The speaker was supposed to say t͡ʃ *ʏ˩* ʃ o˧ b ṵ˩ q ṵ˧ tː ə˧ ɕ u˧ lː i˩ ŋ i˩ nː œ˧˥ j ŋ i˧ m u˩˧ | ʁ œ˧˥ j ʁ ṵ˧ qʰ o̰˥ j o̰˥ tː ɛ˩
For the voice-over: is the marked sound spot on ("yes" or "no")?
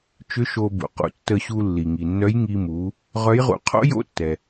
no